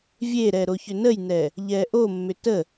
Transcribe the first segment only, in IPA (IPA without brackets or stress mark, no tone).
vʲ